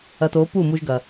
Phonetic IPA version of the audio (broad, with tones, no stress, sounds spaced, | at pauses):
ɐ˧ t o˨˦ p u˦˨ m u˧ ʒ ɡ ɐ˨